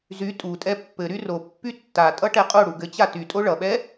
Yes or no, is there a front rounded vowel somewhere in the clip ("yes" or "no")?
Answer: yes